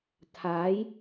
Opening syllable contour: rising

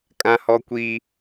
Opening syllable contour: high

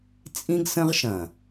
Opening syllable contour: high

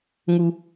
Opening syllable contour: low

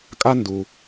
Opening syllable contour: high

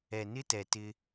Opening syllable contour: low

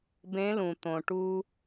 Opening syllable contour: rising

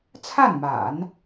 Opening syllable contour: falling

